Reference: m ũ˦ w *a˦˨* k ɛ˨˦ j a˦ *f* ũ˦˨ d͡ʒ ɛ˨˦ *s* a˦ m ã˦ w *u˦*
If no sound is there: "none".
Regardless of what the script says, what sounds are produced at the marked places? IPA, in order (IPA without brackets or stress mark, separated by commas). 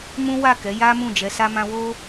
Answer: a˦˨, m, s, o˦